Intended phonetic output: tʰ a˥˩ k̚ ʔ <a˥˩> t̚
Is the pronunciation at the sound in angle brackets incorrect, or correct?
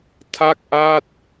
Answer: correct